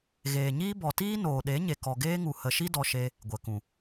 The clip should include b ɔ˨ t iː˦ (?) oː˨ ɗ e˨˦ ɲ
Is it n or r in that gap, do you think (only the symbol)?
n